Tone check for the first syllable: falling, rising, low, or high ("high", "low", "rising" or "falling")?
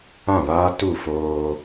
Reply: falling